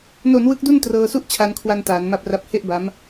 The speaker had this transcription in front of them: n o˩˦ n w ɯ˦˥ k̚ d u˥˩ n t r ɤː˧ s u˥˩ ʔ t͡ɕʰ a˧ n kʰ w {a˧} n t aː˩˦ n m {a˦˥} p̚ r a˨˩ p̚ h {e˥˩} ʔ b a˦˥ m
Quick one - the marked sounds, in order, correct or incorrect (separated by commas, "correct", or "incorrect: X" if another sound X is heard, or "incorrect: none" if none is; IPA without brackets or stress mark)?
correct, incorrect: a˨˩, correct